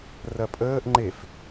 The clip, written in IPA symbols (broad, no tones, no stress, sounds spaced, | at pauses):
r ɐ pʼ əː ʔ ŋ͡ǃ e f